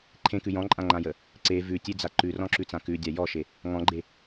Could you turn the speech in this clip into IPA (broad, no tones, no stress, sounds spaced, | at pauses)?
ǃʰ ẽ k ʉ j ɔ̃ ǃʼ ã ŋ͡ǃ ã j ə | ǀ e v ʉ tʲ e d͡z a ǃ ʉ r ɔ̃ ǁ ʉ t͡s ã k ʉ dʲ a j ɔ ʃ e | ŋ ɔ̃ ɡ͡ǃ e